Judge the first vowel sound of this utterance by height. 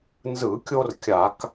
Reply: high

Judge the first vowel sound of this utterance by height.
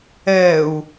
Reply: mid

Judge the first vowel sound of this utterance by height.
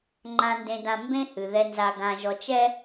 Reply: low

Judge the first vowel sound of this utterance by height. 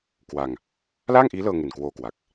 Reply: low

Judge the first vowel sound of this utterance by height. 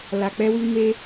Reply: low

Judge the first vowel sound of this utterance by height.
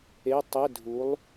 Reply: mid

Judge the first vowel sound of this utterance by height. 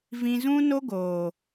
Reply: high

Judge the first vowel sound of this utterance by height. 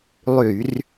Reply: high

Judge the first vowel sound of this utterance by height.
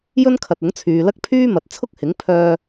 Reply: mid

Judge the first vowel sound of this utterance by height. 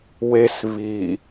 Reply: mid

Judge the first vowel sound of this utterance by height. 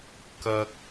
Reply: low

